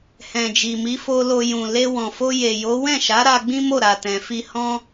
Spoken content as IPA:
h ɛ̃˨ d͡ʒ i˨ m i˨˦ f o˧ l o˧ j ũ˨ l e˧ w ɔ̃˨ f o˧ j e˨ j o˨˦ w ɛ̃˦˨ ʃ a˨˦ ɾ a˧ ɡ͡b ĩ˦ m o˦˨ ɾ a˨ t ɛ̃˨ f i˧ h ɔ̃˦

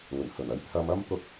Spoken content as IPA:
ŋ ɵ˨˩ n h ɵ˨˩ n ɐ˨˥ j t̪ʰ ɐ˧ m ɐ˥ m t̪ ʊ˥ k̚

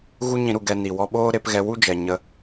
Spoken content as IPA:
ɣ u˦ ɲ ĩ˦ ɾ u˧ ɡ ɛ˧ n i˨ w ɔ˧ ɓ oː˦ ɾ e˨˦ p ɣ ɛ˧ w u˦ d͡ʒ ɛ˨ ɲ ə˧

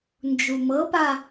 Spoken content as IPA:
n d͡ʒ u m ɤ p a

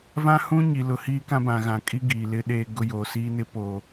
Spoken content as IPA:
v ã˦ h ũ˦ ɲ i˨ l ʊ˨ h iː˦ k ã˦ b ã˨ ɣ ã˨ kʼ i˦ ɡ iː˨ l ɪ˦ ɗ eː˦ ɡ ʊ˦ j oː˨ s iː˦ n ɪ˦ p oː˨

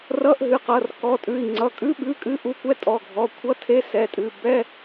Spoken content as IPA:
r ʌ˧˥˧ ʔ ɦ ɨ˩˧˩ q ʌ˩˧˩ r k ɔ˩˧˩ tʼ ʉ˩˧˩ i̯ ŋ͡ǀ ʌ˩˧˩ kʼ ʉ˧˥˧ ɓ ʉ˧˥˧ kʼ ɨ˧˥˧ ʔ u˧˥˧ kʷ ɛ˧˥˧ tʼ ɔ˩˧˩ ɡʱ ɔ˩˧˩ kʷʰ ʌ˧˥˧ tʰ e˧˥˧ s ɛ˩˧˩ tʼ ɨ˩˧˩ b ɛ˧˥˧

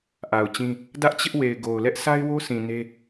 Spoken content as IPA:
ʔ a˨ ʊ̯ t͡ɕ ĩ˦ | d ä˦ ʔ t͡ɕ ɪ˦ ʔ w e˨ ɪ̯ ɡ o˨ ʊ̯ l ɛ˦ ʔ s a˦ ɪ̯ w o˦ s ĩ˨ n e˦

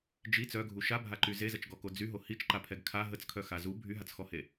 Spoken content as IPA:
d͡ʒ i t͡s œ ɡʱ u ʃ a bʱ a ǃ y z e z ə t͡ʃ ɡ ɔ k o d͡z y ɦ o h i t͡ʃ ǃ a pʰ ɛ ɡ kʰ a ɦ ə t͡s kʰ œ x a z u bʱ y ɦ a t͡s x ɔ h e

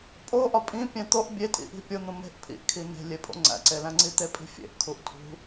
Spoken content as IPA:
pʼ o ʔ ɒ pʼ ĩ pʲ æ̃ t̪ o ʔ bʲ e tʼ ḭ ʔ i̤ pʲ o n̪ ũ m e̤ ʔ pʰ ḭ ʔ kʰ i n̪ e̤ lʲ e pʼ o̰ ŋ͡ǀ æ̰ ǀ e l æ̃ ŋ͡ǀ i t̪ e pʼ i̤ fʲ ḛ ʔ kʰ u ʔ tʰ ṳ

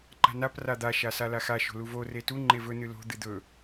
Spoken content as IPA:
ǃ a̤ n a p r a d̪ a ʃ a s a l a x a ʃ o̤ l u v o r e t u ŋ͡ǃ e v ɵ n ɨ l o̤ d̪ ɨ d̪ ɵ

